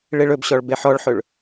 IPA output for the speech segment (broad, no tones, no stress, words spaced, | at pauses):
ɭeɭɵbɕɔɭ beħɔɭħɵɭ